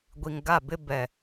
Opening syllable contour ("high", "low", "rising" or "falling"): low